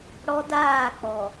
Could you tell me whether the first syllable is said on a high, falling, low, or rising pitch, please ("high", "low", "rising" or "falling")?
high